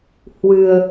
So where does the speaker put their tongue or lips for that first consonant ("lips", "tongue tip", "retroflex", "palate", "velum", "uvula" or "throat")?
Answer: throat